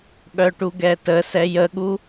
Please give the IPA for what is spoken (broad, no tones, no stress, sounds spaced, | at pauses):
ɠ œ ʈ u ɡ ɛ t ə s ɛ j ə ɠ u